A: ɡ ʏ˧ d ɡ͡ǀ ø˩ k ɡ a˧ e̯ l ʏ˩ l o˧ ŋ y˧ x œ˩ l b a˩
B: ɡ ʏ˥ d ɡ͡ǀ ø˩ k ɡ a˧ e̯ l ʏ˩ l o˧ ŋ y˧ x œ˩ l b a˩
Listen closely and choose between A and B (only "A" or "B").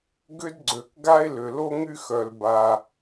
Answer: A